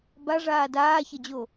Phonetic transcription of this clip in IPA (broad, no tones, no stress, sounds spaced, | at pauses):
b a ʐ aː d aː ç ɐ d͡ʑ o